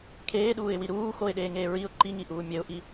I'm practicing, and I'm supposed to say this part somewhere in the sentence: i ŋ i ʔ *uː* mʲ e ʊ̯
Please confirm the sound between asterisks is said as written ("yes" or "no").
yes